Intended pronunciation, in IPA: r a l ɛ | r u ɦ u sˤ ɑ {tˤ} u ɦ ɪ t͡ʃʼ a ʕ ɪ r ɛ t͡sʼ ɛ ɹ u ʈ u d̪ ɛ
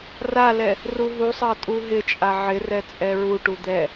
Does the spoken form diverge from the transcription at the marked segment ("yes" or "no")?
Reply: yes